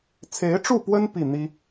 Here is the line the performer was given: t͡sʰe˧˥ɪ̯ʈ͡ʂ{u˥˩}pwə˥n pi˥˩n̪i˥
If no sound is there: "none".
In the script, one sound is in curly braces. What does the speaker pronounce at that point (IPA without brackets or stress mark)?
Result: u˥˩